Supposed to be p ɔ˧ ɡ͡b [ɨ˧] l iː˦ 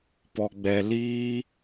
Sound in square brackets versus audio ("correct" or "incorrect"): incorrect